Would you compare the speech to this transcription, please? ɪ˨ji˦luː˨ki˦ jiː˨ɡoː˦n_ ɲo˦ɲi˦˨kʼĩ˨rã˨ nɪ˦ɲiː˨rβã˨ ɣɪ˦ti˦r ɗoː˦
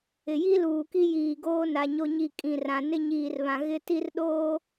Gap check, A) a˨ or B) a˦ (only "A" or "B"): A